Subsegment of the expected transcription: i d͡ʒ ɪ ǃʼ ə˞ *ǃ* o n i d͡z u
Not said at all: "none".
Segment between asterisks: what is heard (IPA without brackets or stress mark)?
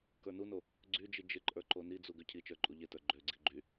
ǃ